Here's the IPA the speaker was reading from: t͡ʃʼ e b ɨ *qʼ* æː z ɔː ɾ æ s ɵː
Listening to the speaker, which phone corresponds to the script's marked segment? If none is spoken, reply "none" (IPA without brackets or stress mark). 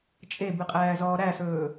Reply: qʼ